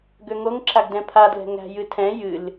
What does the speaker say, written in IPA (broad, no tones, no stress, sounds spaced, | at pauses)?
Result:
ɡ ø ŋ o ŋ ǁ a ɡ d ɛ̃ pʰ a d l ɛ̤ ŋ æ̤ j ɨ tʰ ɛ̃ j ɨ l